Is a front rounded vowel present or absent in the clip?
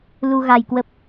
absent